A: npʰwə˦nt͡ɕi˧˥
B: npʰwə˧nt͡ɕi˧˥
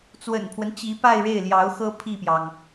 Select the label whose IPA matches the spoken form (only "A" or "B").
A